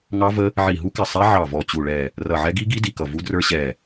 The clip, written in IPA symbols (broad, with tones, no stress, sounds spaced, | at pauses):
ŋ ɑ˦˥ v ə˦˥ | ʕ i˧˩ ɦ u˦˥ k ɪ˧˩ sˤ ɛ˦˥ ʕ ɑ˧˩ v ɔ˧˩ t͡ɕ u˧˩ ɭ ɛ˧˩ | r ʌ˧˩ ʕ ɛ˦˥ ɡ i˦˥ ɡ i˦˥ d i˧˩ k ʌ˧˩ v u˦˥ d r ə˞˦˥ ɕ ɛ˧˩